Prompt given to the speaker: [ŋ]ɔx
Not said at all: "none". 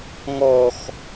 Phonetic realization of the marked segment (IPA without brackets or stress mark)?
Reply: ŋ